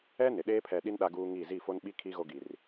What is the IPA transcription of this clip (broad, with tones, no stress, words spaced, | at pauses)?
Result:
ɛ˦ nɪ˨ ɗeː˦pʰɛ˨ɗi˦n ɗa˦ɡuː˦ ŋiː˦˨ zi˦˨fo˦nɓi˦ kʰi˦ ɣo˦ɡi˨r